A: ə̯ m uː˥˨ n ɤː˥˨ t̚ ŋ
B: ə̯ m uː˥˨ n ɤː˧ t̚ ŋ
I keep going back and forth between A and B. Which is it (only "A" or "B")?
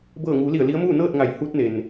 A